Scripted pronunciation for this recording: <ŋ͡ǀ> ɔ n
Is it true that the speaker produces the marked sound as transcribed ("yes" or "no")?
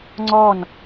yes